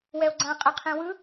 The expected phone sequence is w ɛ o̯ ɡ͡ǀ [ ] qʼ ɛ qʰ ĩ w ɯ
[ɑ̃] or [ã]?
ã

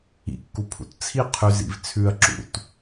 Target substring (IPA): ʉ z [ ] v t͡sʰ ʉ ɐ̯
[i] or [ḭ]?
ḭ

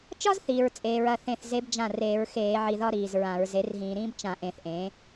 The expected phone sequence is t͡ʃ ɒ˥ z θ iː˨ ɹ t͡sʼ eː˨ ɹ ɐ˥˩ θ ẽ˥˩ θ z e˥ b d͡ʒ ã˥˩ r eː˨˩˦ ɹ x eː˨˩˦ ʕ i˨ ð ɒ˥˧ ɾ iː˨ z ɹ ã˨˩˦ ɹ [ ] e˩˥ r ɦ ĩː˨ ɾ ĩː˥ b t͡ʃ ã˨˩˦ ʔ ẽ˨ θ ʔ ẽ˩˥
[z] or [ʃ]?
z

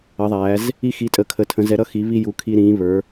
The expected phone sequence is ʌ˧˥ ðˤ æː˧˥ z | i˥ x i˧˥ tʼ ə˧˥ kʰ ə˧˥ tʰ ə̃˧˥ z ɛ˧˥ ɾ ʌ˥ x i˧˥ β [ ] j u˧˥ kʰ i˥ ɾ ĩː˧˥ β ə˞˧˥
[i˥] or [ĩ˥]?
i˥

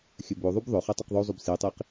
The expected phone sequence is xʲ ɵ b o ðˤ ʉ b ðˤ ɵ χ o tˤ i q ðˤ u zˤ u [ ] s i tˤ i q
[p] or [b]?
b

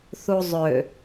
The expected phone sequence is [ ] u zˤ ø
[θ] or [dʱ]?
θ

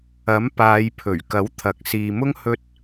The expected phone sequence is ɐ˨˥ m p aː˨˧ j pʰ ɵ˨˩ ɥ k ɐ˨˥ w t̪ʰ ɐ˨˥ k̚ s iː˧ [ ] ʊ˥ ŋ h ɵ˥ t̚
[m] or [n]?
m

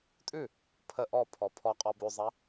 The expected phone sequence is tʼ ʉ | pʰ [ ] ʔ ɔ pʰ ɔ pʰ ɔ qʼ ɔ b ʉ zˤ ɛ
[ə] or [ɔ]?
ə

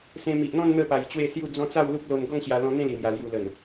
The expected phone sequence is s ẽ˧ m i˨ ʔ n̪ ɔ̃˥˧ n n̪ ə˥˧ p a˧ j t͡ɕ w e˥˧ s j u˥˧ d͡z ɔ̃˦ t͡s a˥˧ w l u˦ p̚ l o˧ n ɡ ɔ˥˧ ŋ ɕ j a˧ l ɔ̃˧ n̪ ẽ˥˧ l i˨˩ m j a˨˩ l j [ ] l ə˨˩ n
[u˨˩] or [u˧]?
u˨˩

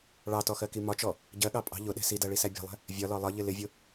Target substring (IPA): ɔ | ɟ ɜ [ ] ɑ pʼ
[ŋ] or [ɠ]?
ɠ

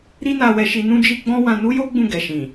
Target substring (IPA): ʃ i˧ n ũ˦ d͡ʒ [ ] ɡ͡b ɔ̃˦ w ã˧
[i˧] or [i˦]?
i˦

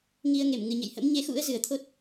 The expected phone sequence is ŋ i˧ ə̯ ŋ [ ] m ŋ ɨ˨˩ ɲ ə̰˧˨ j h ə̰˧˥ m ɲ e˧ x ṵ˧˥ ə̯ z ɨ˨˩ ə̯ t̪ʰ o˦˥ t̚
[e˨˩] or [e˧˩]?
e˧˩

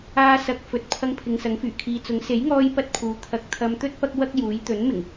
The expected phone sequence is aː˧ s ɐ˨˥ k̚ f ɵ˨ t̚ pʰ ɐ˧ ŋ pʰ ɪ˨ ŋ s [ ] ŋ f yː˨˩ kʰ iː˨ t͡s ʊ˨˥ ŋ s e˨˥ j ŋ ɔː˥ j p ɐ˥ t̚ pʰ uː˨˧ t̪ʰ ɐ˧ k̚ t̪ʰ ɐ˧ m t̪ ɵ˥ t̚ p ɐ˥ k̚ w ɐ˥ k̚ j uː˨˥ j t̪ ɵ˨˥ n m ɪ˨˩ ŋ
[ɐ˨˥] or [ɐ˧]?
ɐ˨˥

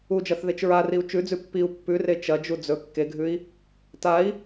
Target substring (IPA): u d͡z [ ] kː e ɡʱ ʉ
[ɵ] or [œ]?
ɵ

